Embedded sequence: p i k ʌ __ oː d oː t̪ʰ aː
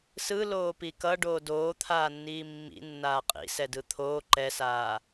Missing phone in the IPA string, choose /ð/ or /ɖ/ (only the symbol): ɖ